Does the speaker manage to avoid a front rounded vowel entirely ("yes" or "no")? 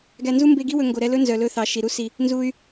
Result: no